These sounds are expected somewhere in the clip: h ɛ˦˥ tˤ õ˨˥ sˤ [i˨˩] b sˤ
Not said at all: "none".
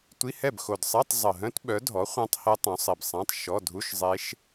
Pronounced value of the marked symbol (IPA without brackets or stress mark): i˨˩